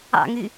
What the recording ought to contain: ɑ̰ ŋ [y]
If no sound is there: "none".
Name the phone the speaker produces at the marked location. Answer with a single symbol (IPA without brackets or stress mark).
y